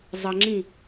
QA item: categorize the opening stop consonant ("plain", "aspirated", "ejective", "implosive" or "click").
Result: click